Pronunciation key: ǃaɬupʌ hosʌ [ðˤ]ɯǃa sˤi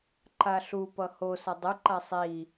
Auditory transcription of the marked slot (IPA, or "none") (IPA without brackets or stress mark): dˤ